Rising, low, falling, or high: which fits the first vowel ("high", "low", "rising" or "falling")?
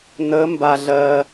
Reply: rising